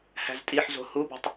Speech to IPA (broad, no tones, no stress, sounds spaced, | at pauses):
h æ̤ z tʼ i ħ z o̤ h u b o̤ tˤ